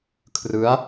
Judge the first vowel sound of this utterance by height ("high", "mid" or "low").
high